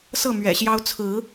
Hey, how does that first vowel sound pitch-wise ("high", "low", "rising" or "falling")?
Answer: falling